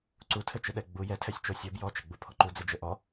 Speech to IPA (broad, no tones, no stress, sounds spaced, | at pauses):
ǀ u tʰ ɘ t͡ʃ ɪ ɗ ɛ ɡ͡b u j ɛ tʰ ɛ sʲ t͡ʃ o sʲ ɔ b j ɔ t͡ʃ ɪ ɡ͡b u pʰ ɔ ǃ u d͡z ɘ d͡ʒ ɘ ʔ ɔ